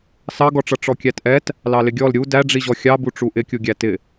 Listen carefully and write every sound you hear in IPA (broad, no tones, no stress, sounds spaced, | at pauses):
s ɑ ɡ ɔ ʈ͡ʂ ʌ ʈ͡ʂ ɔ kʲ æ t ʔ ɛ t | l ɑ l ɪ ɡʲ ɔ l ɾʲ u d æ ɖ͡ʐ i ʑ ɔ xʲ ɑ b u ʈ͡ʂ u ʔ ɪ kʲ u ɡʲ æ t ɪ